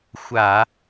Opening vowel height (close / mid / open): open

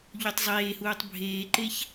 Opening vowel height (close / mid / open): close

